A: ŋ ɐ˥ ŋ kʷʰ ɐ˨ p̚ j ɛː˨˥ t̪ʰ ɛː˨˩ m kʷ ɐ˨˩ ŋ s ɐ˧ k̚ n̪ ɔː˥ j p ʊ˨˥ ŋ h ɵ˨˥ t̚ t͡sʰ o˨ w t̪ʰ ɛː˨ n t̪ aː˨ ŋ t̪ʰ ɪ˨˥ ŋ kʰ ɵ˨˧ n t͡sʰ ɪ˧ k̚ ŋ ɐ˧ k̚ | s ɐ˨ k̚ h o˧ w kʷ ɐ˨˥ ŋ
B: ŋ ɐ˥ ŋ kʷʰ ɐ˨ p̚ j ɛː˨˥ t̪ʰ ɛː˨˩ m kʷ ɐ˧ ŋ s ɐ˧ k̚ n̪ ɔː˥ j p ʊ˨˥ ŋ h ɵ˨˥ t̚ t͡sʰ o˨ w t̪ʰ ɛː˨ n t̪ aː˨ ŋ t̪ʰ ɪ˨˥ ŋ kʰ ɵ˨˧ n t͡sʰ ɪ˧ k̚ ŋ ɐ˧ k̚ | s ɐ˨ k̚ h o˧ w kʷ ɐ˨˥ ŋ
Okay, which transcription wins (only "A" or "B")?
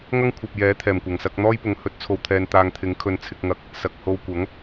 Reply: A